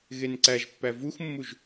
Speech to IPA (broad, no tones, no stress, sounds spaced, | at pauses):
ɣ e n ǀ æ ʒ pː æ v u x mː u ʒ